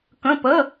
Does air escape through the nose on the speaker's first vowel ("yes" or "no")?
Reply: yes